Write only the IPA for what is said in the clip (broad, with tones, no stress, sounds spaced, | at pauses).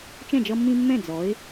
t͡ʃ ɛ̃˥˨ d͡ʒ ʌ˦ mː ĩ˦ mː ɛ̃˥˨ d͡z ɔ˨˥ ɪ̯